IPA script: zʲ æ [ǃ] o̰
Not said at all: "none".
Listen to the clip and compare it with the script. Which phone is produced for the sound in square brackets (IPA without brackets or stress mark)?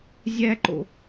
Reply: ǃ